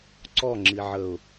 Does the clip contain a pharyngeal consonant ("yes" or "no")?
yes